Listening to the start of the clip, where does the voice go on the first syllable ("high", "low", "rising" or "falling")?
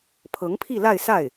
rising